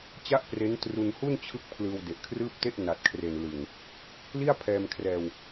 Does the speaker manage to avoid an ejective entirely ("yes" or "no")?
yes